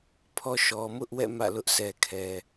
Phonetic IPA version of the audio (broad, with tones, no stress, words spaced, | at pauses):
pʰɔ˦ ʃɔ˨mʊ˦ʔwɛ̰˦˨ mä̰˦˨lʊ˦ʔ sʰɛ˨kʰɛ˨